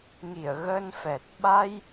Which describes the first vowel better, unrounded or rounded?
unrounded